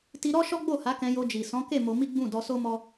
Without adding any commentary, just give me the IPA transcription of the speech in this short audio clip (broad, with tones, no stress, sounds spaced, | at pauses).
t i˧ ɾ ɔ˦ ʃ ɔ˦ ɡ͡b o˦˨ h a˨˦ k ɛ̃˧ j o˧ d͡ʒ i˨ s ɔ̃˨˦ k e˦˨ m o˧ m i˦ ɡ͡b ũ˦˨ d ɔ˧ s o˦ m ɔ˦